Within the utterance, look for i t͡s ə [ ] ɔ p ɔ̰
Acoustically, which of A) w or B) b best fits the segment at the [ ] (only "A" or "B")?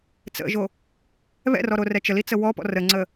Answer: A